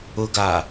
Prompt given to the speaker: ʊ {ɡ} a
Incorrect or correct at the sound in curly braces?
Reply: correct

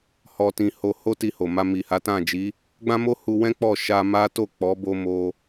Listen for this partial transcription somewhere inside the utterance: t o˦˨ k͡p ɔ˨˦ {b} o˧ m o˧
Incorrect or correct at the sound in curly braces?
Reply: correct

